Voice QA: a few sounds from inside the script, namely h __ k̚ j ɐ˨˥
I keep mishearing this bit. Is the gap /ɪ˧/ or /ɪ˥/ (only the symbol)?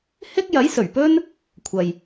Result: ɪ˥